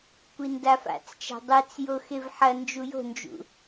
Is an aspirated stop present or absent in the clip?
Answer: absent